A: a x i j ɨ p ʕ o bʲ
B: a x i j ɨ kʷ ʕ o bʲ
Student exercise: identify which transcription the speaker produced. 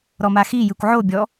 B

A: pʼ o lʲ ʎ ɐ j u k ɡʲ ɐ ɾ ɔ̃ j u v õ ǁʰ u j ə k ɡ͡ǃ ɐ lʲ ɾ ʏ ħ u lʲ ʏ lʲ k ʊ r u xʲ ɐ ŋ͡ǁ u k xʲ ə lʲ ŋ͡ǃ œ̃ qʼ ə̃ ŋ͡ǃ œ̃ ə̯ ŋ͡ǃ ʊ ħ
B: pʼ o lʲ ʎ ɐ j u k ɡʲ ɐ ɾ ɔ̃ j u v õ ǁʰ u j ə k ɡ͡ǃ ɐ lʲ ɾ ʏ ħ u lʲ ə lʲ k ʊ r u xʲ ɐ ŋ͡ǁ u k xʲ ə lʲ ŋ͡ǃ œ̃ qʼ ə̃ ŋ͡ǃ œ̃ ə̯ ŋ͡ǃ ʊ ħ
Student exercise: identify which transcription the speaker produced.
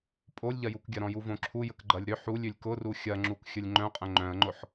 A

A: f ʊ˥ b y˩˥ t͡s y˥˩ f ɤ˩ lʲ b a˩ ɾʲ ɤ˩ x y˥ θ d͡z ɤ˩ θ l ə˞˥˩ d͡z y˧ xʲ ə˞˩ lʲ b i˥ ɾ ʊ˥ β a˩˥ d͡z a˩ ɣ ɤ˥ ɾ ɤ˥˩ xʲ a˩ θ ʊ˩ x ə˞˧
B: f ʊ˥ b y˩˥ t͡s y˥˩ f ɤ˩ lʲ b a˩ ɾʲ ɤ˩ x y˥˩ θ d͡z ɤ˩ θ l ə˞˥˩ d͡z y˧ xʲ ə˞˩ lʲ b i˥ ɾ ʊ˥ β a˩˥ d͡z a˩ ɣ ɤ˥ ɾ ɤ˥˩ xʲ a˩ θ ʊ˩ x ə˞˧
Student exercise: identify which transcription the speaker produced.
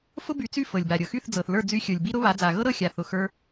B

